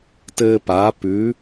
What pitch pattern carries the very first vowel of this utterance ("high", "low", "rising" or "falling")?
high